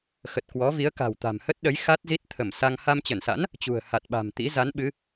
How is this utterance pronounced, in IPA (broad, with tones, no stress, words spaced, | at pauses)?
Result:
xə˨˩t̚kwɔ˨˦vi˨˦ə̯ka̤˨˩w t̪a̤˨˩mhə˦˥t̚ɗə˨˦j xa˦˥t̚zi˦˥t̚ t̪ʰə˧˩m sa˧ŋ ha˧mt͡ɕə˧˩nsa̰˧˥n | t͡ɕṳ˨˩ə̯ha˨˩t̚ɓa̤˨˩mt̪ḭ˧˥ za˨˦nɓɨ˨˦